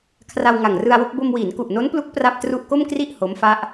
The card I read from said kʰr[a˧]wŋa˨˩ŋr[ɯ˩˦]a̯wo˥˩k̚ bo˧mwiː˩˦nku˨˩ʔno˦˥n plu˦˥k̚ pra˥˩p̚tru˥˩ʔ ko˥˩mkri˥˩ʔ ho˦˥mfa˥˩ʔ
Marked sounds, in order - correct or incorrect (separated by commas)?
correct, incorrect